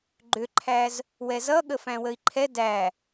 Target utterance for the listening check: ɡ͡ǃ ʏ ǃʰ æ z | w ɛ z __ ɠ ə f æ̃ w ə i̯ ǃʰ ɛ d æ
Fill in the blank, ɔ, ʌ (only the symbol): ʌ